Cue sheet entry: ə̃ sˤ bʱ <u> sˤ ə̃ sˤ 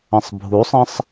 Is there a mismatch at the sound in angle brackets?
no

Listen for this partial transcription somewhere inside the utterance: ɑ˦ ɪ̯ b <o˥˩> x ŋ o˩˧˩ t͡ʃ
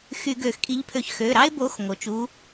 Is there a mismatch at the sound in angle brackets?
yes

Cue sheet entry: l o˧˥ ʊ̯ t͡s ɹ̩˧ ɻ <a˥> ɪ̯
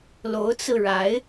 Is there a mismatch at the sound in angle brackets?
yes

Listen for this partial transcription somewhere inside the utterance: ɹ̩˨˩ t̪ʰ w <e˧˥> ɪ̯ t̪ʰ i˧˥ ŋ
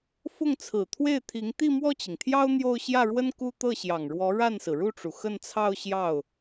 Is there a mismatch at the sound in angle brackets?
yes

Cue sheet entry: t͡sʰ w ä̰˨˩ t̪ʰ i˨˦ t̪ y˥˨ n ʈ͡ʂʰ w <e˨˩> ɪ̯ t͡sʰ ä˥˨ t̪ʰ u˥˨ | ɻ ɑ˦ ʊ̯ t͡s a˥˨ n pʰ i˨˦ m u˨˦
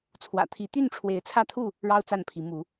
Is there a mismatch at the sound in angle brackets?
yes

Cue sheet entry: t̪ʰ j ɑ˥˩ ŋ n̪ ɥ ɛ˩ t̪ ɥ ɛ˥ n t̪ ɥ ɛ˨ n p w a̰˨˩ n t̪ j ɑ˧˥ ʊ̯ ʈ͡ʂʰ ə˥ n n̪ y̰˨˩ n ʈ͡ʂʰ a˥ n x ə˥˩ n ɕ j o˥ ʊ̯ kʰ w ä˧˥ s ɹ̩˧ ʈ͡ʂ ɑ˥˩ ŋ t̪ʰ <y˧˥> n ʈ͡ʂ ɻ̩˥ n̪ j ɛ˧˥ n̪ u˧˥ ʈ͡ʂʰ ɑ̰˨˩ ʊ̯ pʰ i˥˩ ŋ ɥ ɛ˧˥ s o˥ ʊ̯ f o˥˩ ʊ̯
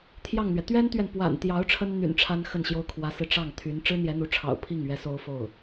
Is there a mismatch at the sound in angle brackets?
no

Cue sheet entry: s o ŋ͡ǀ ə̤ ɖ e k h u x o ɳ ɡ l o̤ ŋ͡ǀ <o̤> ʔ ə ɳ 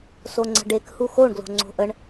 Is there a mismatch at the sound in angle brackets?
no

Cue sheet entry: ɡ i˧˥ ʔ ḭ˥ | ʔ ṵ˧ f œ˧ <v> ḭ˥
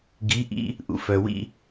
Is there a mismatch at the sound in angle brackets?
yes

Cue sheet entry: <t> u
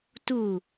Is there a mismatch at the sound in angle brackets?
no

